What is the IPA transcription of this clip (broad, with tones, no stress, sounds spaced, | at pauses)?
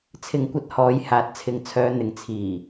t͡sʰ ɪ˨ ŋ kʷ ɐ˧ t̚ h ɔː˨˧ j h aː˨ t̚ t͡sʰ ɪ˨ ŋ t͡sʰ œː˨˧ n̪ ɪ˨ ŋ t͡sʰ iː˨˩